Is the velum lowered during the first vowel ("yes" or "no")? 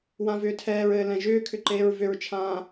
yes